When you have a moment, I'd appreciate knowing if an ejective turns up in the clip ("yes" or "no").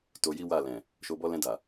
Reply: no